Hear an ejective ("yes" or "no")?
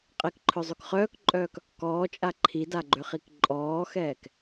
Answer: yes